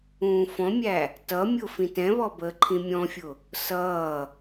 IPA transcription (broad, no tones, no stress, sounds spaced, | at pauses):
ũː f ɔ̃ mʲ æ | t ʌ mʲ ʊ f ĩ t ɛ̃ β ɔ b əː ǃʰ ĩ mʲ ɔ̃ fʲ ʊ | s ʌː